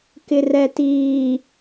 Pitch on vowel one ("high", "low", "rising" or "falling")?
low